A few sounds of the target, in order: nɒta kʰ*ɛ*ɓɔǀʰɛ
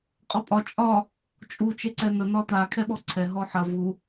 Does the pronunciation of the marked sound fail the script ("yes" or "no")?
no